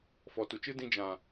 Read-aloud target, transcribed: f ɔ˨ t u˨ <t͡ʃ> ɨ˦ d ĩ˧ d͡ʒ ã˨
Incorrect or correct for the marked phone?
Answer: correct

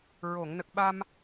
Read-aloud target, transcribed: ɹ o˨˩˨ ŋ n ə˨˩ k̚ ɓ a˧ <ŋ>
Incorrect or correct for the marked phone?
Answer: incorrect: m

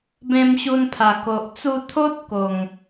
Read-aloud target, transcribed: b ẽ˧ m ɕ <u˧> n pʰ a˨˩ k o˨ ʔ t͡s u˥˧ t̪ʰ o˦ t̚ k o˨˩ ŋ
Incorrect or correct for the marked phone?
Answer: correct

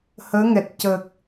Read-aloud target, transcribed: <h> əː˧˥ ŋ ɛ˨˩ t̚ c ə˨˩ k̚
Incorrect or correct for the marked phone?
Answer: correct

